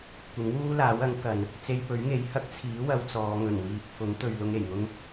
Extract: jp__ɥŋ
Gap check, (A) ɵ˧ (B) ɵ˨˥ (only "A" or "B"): B